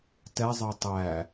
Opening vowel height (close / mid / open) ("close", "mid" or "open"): mid